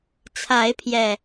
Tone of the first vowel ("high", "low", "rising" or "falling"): rising